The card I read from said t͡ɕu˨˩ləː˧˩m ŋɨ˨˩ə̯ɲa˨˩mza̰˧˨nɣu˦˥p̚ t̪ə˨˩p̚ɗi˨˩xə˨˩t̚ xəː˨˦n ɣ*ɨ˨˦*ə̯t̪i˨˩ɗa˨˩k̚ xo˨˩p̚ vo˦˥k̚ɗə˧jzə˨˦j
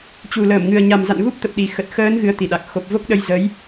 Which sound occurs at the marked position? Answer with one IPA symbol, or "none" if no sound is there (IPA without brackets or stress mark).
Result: ɨ˨˦